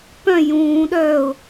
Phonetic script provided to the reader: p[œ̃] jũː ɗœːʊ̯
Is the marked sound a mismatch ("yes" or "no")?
no